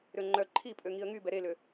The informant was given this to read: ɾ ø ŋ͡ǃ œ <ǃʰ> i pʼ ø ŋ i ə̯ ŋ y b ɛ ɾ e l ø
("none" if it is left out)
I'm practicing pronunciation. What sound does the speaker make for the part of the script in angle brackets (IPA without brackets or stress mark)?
ǃʰ